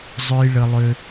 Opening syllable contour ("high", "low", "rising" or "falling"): low